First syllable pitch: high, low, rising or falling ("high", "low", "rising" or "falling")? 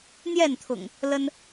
falling